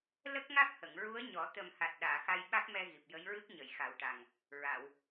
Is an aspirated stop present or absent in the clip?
absent